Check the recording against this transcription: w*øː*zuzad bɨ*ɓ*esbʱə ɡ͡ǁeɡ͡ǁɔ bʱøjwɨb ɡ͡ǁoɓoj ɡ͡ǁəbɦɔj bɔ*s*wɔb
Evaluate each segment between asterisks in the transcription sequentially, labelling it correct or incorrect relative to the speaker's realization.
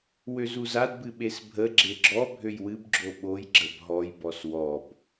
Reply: incorrect, correct, correct

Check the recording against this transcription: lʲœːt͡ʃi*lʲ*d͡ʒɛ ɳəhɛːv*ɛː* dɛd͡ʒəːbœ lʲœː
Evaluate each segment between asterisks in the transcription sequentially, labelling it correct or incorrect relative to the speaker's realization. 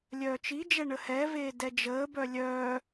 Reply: incorrect, incorrect

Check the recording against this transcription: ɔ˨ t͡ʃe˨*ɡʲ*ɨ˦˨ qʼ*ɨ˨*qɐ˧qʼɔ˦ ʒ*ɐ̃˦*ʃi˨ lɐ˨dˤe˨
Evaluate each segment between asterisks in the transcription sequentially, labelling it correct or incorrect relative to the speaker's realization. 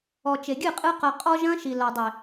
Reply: correct, incorrect, correct

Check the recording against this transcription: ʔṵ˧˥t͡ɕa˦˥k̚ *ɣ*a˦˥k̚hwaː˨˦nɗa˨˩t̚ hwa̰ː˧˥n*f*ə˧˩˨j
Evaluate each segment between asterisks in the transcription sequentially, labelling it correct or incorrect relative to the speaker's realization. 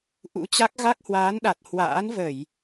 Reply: correct, incorrect

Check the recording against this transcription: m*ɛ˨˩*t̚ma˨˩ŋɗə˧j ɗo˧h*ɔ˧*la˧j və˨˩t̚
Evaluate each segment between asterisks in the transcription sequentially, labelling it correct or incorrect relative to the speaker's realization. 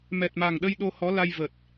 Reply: correct, incorrect

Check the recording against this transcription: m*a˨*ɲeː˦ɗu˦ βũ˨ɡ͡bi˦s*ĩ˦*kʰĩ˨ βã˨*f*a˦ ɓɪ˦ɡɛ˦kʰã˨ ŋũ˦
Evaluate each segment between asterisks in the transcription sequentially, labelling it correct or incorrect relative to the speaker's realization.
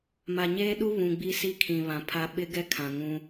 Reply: correct, incorrect, incorrect

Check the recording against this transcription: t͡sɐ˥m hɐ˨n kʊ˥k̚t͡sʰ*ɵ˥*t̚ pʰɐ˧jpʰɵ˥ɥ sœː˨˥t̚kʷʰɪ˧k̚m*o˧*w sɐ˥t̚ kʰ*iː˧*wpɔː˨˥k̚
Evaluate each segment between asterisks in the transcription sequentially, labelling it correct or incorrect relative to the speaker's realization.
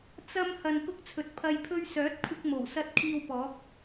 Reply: incorrect, incorrect, correct

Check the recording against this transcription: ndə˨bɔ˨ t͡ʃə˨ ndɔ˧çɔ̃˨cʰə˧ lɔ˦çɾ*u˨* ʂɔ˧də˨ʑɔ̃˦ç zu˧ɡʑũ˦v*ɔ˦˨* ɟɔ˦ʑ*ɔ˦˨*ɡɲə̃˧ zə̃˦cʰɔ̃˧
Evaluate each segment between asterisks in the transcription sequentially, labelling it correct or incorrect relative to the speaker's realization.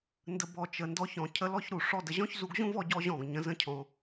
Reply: correct, incorrect, incorrect

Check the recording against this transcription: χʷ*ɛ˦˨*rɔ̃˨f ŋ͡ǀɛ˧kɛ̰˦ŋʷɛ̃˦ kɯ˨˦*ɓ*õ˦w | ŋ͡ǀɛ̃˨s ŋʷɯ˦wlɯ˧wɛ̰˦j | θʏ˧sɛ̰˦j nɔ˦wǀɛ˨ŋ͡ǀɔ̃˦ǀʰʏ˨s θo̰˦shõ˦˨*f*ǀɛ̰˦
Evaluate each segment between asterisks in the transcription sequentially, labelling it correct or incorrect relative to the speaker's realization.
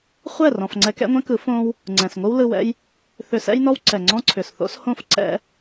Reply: correct, incorrect, correct

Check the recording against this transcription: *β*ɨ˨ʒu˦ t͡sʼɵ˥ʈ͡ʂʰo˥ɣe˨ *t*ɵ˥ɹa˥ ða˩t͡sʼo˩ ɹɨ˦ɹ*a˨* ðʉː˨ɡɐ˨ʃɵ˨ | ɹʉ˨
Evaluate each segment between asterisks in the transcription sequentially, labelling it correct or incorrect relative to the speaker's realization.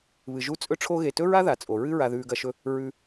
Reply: correct, correct, correct

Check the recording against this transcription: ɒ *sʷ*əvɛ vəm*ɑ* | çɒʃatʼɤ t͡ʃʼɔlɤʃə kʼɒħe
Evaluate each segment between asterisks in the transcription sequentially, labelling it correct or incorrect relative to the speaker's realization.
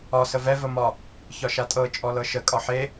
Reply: incorrect, incorrect

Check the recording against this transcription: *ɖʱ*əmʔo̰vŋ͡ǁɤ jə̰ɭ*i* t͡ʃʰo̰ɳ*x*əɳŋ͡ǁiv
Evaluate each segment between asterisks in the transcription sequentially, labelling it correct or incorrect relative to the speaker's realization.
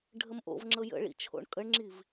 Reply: correct, incorrect, incorrect

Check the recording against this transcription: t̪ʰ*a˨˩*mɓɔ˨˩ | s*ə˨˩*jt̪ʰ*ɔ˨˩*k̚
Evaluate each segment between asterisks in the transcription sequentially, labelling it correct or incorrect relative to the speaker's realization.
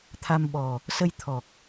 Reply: incorrect, incorrect, correct

